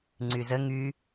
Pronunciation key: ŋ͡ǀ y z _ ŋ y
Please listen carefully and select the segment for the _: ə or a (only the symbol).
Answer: ə